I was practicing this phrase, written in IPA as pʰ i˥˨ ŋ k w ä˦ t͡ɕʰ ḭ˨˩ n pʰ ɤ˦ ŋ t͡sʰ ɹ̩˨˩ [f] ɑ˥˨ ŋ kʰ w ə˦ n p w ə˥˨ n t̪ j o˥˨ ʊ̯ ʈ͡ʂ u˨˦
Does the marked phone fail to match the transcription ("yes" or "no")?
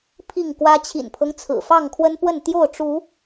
no